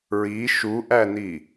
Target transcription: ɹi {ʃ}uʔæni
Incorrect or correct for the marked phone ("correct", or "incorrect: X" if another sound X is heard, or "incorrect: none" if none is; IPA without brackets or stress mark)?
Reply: correct